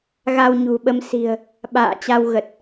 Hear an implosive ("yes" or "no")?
yes